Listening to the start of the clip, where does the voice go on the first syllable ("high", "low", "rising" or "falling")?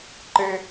high